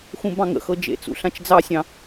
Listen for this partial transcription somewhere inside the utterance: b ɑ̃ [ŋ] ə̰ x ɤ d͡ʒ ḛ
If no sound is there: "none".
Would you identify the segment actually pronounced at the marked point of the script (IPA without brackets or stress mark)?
ŋ